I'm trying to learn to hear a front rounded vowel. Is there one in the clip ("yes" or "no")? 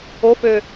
yes